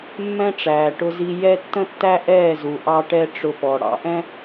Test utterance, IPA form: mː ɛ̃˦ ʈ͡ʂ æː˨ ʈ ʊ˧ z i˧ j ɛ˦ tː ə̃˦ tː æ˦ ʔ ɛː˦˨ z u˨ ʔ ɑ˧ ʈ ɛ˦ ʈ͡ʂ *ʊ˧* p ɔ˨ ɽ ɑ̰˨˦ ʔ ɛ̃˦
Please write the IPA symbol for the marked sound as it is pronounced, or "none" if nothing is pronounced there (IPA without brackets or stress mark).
ʊ˧